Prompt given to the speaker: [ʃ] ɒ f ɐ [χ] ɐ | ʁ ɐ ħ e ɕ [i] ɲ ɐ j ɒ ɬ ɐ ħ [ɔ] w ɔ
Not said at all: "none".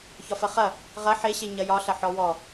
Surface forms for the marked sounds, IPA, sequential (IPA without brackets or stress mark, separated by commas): ç, χ, e, ɔ